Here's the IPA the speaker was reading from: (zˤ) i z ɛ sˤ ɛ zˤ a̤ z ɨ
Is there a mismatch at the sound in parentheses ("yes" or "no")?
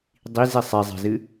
yes